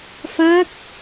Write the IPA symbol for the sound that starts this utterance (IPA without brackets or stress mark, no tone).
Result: f